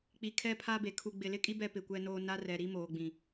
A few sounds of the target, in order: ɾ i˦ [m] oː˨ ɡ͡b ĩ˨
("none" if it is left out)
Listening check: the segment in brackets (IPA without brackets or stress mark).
m